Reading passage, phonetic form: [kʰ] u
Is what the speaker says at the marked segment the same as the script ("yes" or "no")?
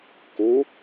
no